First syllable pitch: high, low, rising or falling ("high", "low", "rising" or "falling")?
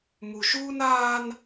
low